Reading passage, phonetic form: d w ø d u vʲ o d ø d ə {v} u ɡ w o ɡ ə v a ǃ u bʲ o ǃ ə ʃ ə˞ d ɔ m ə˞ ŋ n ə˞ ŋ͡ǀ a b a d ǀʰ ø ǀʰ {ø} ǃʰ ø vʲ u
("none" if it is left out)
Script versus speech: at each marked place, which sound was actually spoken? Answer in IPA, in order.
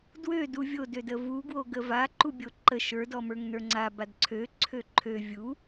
v, ø

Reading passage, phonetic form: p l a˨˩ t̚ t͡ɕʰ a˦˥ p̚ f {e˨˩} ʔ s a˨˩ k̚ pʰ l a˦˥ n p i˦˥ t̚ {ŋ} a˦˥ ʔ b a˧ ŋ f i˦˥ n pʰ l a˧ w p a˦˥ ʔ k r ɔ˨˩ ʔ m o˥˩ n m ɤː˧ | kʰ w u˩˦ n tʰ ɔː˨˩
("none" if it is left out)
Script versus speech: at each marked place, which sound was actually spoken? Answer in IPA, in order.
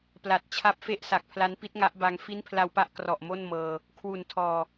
e˥˩, ŋ

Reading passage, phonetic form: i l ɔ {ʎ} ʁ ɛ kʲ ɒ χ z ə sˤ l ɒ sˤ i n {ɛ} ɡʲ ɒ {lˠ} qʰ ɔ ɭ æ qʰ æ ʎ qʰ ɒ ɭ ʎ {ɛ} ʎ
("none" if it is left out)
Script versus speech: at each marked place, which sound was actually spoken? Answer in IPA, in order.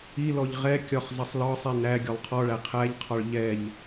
ʎ, æ, lˠ, ɛ

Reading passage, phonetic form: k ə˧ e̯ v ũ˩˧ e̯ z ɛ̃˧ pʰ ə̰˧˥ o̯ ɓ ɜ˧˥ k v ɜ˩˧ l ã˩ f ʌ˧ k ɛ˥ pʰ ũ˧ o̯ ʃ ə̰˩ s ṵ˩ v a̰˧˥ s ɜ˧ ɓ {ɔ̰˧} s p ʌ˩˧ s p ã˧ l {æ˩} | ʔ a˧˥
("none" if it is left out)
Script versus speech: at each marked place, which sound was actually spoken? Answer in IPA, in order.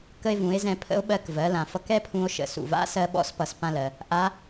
ɔ̰˧˥, ɜ˩

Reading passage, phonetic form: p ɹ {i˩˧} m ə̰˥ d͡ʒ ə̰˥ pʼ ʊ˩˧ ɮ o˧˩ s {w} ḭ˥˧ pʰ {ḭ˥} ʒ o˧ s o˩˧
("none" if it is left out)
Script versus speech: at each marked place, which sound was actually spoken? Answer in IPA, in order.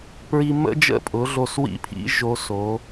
i˧, w, ḭ˥

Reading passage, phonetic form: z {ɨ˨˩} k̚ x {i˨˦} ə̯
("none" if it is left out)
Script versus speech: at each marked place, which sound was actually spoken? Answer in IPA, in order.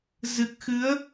ɨ˨˩, ɨ˨˦

